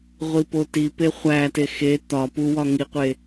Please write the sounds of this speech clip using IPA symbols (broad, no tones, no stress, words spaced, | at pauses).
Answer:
ʁʷipotipe χʷæte xe t̪ɒ puwɒ ŋiqʷe